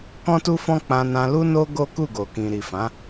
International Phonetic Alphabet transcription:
k ɔ̃˦ t u˦ f ɔ̃˦ k͡p ã˧ n ã˧ l u˦ n o˦ ɡ o˦ k u˦˨ ɡ o˨ k ĩ˨ ɾ i˨ f ã˨˦

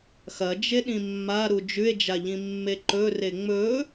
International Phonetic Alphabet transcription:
x ɐ d͡ʒ e ɗ ĩ mː a ɾ u d͡ʒ ʉ e̯ d͡ʒ a ʎ ĩ mː e ǃ ɵ r e ŋ͡m ɵ

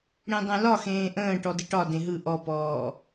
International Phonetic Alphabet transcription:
ɽ ẽ dˤ œ̃ l ɒ x ẽː ʔ ə̃ː ʈ ɔ d ɪ ʈ ɒ d ẽ ɦ ɯ ʔ ɔ p ɔː

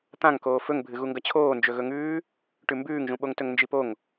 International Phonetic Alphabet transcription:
t̪ ã ŋ k oː f ɵ ŋ bʱ ɨ ɣ u ŋ ɡ ɐ t͡ɕʰ oː n d͡ʒ ɵ ɣ ɵ ŋ ʉː | ʈ ʉ m b ʉː ŋ ʒ ũ ɓ o ŋ t ɵ ŋ n d͡ʒ i p o ŋ

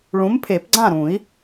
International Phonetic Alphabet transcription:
ɭ ũ˨˥ m pʰ e˨˩˦ p ɡ͡ǀ ã˥˨ ɾ ũ˨˩˦ i̯

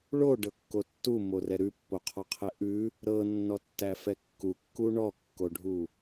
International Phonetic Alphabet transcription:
ɭ o ɖ ɤ kː o tː u m o r ɛ ɾ ʉ pː o qʰ ɔ qʰ ɛ ʔ ʉ | ɾ ɤ nː ɔ tː æ f ɛ kː u kː u ɳ ɔ kː o ɖʱ u

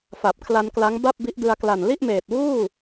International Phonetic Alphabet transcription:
f a˨˩ p̚ kʰ l a˧ n k l a˦˥ ŋ b a˥˩ p̚ b i˦˥ ʔ d ɯ˧ a̯ k l a˨˩ n l i˥˩ ʔ m eː˨˩ t̚ w uː˥˩

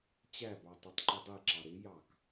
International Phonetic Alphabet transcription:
t͡ɕ æ b ɑ tˤ u tˤ ǃ i dˤ i ǁ ɑ ɾ ɪ j ɑ k

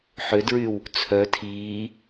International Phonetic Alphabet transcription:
ħ ø d ɹ y w | t͡sʰ œ tʰ iː

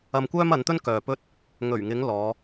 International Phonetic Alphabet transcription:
ɐ˧ m kʷ œː˥ m ɐ˨˧ n t̪ ɵ˥ n k œː˨ p ɵ˥ t̚ | ŋ ɵ˨˩ ɥ ŋ ɪ˨˧ ŋ l ɔː˨˧

